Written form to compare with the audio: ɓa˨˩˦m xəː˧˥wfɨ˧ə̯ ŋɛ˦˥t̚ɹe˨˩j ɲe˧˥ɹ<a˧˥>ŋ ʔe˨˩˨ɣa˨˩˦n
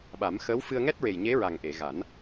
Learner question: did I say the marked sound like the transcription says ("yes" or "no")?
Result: no